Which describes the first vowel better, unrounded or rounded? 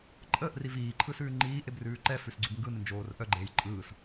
unrounded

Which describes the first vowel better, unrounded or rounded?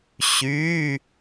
rounded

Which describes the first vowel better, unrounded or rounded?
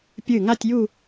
unrounded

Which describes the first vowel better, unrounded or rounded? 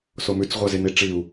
rounded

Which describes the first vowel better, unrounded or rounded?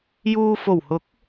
rounded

